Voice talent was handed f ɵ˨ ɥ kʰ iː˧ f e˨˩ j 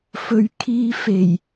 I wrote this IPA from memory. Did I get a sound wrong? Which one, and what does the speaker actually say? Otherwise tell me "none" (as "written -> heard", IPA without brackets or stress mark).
none